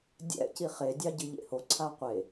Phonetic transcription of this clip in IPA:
dʲ ɛ̰ c i χ e dʲ ɑ ɟ ɯ ʎ ḛ h o ǀʰ a qʷ e

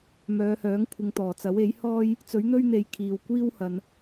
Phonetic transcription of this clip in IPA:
m œː˨˧ h œː˨˥ ŋ kʷʰ ɪ˨ ŋ t̪ ɔː˨˩ t͡s ɐ˨˥ w e˨˥ j h ɔː˥ j | t͡s ɵ˨˥ ɥ n̪ ɵ˥ ɥ n̪ e˨˧ j kʰ iː˨ w kʷ iː˥ w h ɐ˨ n

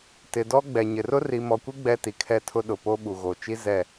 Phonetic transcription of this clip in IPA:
t ɪ˨ d ɔ˦ ɡ͡b ɛ˨ ɲ ɪ˨ r ʊ˦ r i˨ m ɔ˨ kʷ i˦ ɡ͡b ɛ˦ t i˨ kʰ ɛ˦ tʰ ʊ˦ ɗ ʊ˨ p o˦ ɓ u˨ ɣ o˨ t͡ʃ i˦ z ɛ˦˨

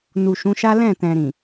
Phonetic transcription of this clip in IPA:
n u˨ ʃ ũ˨˦ ʃ a˦ l ɛ̃˦˨ t ɛ̃˨ ɾ ĩ˨

